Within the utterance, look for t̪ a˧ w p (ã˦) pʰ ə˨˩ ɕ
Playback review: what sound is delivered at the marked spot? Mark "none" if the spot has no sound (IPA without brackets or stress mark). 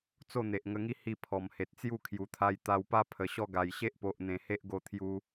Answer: a˦